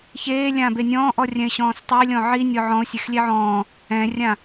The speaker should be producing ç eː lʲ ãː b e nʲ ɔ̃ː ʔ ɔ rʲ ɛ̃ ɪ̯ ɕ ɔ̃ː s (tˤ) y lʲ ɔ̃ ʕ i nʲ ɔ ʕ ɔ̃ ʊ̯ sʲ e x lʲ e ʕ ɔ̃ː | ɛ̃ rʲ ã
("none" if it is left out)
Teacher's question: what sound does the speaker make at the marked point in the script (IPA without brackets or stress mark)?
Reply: tˤ